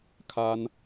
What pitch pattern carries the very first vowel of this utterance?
high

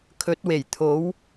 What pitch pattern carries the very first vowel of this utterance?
rising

